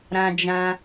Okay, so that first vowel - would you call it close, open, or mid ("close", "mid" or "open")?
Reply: open